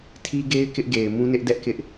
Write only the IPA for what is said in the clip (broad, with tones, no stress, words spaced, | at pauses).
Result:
tʰi˦ɡe˦ɪ̯ kɪ˦ʔɡe˨ɪ̯mũ˦nɪ˦ʔ dɛ˦ʔkɪ˦ʔ